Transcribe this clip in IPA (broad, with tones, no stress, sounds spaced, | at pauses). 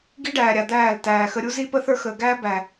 ɡ i˦ ɖ æː˨ ɾʲ a˨ d̪ æː˦˨ l t æː˨ x ə˧ ɾʲ u˦ z i˦ p ə˦ θ ə˞˦ x əː˨ ɡ æː˦ b æ˨